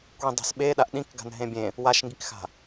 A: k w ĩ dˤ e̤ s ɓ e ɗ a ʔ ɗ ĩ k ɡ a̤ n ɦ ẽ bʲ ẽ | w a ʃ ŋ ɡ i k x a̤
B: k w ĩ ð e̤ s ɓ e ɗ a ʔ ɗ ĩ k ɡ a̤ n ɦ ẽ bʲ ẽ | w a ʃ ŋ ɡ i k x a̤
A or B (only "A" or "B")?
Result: A